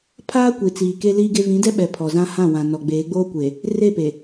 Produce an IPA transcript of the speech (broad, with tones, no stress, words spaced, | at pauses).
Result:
pʰaː˦kʷi˨t͡siː˨ ke˦liː˦ɡe˦ vĩ˨˦dɛ˦ɓɛ˨ pʰɔ˨zã˦ hã˦˨wã˨ nɔ˨ɡ͡beː˨˦ɡ͡boː˦kʷe˨ | re˦˨pe˨